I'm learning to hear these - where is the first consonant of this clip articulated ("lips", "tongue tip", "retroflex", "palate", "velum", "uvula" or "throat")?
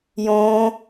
palate